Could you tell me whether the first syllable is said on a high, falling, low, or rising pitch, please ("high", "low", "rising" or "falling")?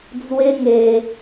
high